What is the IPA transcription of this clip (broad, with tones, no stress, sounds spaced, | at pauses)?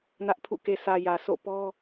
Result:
n ä˦ ʔ pʰ ṵ˦˨ k e˨ sʰ ä˨ j ä˨ s o̰˦˨ p ɔ˦